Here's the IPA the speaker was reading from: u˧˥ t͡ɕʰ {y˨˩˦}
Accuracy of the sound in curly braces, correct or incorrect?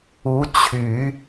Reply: correct